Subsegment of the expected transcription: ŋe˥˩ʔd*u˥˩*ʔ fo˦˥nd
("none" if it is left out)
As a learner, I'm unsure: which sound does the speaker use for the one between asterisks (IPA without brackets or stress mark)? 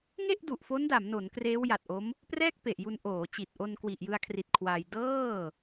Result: u˨˩